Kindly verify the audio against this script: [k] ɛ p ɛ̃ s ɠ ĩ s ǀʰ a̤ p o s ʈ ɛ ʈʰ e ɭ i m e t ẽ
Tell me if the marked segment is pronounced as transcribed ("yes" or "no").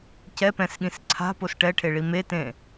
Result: no